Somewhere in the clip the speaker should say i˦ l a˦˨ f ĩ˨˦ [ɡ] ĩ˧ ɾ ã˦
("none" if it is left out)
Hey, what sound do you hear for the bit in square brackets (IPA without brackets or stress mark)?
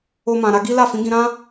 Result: ɡ